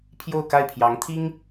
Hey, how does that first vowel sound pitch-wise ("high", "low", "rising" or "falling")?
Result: falling